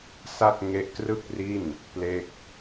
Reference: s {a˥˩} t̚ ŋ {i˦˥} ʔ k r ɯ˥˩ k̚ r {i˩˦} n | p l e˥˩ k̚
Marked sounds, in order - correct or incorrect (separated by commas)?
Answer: correct, incorrect, incorrect